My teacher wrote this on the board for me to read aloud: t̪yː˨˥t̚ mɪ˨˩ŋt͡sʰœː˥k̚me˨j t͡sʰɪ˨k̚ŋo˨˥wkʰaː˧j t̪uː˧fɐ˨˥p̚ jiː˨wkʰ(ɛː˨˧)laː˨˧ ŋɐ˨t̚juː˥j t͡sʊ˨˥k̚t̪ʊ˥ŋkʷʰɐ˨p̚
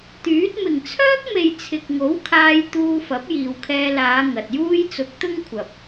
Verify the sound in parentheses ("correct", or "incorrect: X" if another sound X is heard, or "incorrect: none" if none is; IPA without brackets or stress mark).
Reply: incorrect: ɛː˧